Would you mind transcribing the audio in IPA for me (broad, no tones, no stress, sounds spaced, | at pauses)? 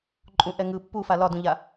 ǃʼ ũ ʔ ɛ ŋ ɯ pː u f a l ɒ d ũ ʎ a